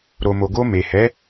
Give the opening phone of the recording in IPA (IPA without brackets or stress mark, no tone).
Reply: ɾ